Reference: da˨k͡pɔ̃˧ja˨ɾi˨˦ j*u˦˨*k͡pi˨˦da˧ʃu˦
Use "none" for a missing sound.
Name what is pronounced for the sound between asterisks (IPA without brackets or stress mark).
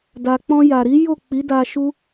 o˦˨